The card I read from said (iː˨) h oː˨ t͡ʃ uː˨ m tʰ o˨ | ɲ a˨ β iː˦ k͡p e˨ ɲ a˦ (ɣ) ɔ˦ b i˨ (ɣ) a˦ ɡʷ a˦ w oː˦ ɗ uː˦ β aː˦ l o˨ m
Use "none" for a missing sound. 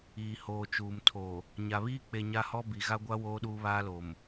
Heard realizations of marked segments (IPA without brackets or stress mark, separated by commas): iː˨, h, ɣ